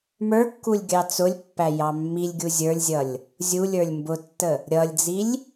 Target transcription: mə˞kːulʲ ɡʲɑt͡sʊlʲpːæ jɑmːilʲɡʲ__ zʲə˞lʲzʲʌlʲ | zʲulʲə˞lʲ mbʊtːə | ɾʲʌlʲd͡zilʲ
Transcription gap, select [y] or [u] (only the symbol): u